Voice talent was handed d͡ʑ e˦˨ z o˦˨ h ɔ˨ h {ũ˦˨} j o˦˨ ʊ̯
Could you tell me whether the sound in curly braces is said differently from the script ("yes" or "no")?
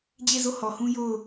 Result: yes